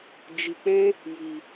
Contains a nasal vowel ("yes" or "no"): yes